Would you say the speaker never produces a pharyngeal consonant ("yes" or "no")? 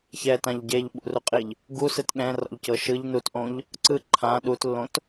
yes